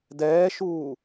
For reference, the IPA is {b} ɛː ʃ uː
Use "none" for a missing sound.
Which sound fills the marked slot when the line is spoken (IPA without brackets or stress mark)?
d